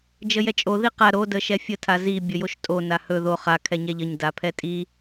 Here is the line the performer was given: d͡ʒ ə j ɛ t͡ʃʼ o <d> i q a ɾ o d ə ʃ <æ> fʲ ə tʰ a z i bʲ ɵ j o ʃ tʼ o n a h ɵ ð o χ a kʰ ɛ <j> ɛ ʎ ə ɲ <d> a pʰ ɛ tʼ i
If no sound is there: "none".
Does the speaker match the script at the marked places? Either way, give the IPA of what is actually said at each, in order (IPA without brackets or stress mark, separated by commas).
ð, ɛ, ɲ, d